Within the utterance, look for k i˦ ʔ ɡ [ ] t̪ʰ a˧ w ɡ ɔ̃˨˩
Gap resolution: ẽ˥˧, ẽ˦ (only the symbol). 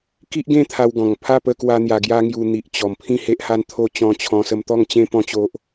ẽ˥˧